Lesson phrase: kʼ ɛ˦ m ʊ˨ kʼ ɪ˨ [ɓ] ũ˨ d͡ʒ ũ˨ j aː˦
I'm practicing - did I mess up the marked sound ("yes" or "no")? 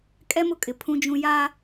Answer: yes